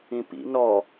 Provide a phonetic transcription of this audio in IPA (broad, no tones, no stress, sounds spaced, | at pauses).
ĩ p ḭ n ɔ